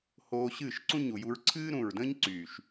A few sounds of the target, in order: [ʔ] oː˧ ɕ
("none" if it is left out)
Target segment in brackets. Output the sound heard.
h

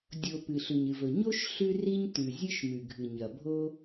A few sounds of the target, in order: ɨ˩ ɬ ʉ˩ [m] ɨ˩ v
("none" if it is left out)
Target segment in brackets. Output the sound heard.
ɲ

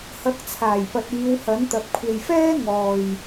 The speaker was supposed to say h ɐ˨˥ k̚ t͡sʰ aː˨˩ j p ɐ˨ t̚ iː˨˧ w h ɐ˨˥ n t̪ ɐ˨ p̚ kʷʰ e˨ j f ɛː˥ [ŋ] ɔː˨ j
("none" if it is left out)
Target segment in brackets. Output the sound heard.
ŋ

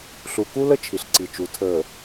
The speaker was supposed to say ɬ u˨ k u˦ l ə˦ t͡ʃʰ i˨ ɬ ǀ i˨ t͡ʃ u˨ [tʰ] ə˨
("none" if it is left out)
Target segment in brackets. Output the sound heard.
tʰ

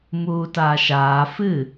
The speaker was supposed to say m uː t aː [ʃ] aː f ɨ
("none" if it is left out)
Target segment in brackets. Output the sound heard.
ʃ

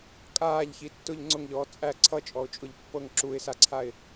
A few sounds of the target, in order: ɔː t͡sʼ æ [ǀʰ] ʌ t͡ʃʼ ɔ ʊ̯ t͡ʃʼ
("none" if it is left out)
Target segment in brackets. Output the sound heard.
ǀʰ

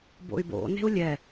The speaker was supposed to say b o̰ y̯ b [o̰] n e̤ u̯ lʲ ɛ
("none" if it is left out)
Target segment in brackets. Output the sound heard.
o̰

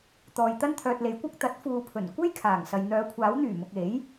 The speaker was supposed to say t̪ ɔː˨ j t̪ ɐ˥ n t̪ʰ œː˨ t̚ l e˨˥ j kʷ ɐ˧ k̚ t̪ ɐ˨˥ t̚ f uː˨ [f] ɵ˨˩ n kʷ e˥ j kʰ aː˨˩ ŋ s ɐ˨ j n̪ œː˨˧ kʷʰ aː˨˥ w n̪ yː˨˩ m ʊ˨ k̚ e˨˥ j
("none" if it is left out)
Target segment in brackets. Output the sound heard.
pʰ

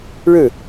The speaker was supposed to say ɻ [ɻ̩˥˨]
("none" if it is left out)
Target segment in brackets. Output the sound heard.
ɻ̩˥˨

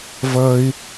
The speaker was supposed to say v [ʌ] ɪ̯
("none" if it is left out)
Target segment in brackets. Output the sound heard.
ʌ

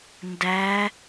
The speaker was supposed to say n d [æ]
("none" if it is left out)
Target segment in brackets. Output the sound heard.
æ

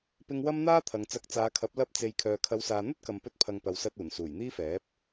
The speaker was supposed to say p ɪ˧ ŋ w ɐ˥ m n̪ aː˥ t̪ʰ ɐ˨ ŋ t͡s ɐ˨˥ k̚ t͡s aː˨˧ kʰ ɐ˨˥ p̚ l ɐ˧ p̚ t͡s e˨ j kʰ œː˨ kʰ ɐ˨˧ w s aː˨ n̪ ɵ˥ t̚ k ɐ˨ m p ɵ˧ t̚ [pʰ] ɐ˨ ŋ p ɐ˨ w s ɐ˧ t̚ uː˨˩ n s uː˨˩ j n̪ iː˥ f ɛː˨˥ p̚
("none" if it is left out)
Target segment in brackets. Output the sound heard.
pʰ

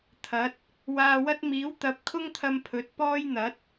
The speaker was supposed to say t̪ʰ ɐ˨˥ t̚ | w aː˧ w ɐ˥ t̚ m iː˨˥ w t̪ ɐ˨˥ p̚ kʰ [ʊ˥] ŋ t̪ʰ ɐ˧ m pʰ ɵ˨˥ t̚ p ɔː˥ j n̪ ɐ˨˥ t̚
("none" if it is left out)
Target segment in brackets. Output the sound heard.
ʊ˥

